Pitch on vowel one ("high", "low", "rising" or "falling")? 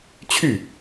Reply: falling